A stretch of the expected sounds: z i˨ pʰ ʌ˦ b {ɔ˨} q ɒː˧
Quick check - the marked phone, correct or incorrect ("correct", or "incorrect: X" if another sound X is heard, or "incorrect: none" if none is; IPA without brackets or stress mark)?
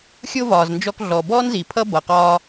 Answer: incorrect: ʌ˨